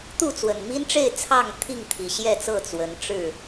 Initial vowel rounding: rounded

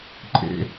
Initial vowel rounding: unrounded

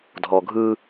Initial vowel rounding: rounded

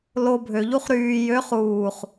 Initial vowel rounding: rounded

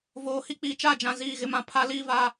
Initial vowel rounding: rounded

